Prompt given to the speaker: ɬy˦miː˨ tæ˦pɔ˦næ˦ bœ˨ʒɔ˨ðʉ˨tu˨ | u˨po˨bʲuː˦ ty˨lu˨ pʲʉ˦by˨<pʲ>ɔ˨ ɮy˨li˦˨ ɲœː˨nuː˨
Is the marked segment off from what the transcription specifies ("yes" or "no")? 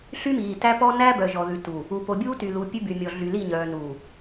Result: yes